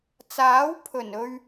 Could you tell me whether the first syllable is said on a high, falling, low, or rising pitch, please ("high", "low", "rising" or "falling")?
rising